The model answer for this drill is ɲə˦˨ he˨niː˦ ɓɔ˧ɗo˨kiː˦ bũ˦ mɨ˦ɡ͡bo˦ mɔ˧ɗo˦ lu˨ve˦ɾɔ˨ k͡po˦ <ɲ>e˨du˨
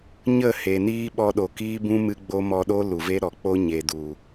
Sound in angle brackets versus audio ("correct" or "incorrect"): correct